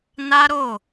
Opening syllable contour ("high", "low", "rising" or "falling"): high